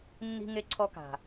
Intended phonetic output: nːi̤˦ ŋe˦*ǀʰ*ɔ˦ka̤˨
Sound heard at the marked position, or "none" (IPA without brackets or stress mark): ǀʰ